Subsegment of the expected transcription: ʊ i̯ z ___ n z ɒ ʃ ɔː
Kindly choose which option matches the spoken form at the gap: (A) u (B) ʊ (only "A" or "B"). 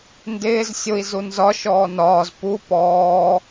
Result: A